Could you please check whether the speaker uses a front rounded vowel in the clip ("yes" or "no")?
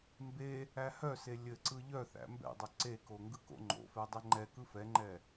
yes